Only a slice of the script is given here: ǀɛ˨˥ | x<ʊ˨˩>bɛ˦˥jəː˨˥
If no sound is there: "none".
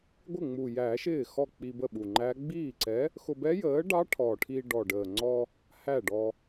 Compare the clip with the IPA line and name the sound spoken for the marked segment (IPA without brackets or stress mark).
ʊ˧